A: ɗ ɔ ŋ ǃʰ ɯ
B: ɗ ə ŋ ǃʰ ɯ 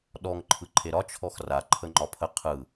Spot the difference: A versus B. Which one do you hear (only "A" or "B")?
A